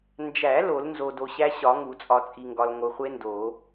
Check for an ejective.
present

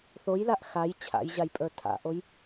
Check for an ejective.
present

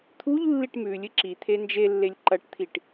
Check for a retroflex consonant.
present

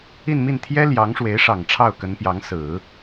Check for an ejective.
absent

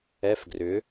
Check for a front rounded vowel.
present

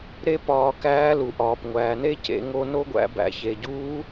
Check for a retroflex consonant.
absent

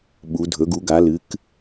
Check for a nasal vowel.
absent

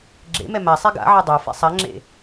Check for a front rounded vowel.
absent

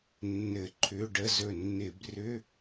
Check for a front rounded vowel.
present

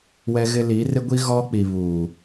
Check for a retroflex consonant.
absent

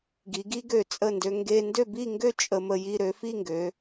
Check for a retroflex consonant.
absent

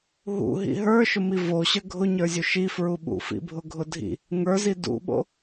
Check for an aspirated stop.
absent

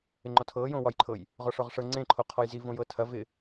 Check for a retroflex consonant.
present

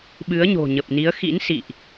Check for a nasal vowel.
absent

